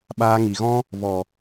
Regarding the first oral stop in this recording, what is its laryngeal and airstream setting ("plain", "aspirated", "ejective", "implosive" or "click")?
implosive